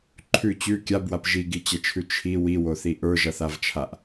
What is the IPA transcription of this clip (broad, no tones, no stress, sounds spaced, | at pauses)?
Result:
ǃʰ ʉ t͡ɕ ʉ kʲ a b w a p ʒ i ɡ i t͡ɕ ɛ t͡ʃʰ ʉ t͡ʃʰ i w i w o θ i ʔ ə˞ ʒ ʌ θ a v t͡ʃʰ a ʔ